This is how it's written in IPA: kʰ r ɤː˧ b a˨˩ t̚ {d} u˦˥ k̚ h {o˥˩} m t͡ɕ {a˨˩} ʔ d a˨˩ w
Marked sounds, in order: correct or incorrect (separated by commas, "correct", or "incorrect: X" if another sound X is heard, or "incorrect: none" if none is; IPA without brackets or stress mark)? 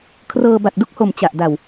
correct, incorrect: o˨˩, correct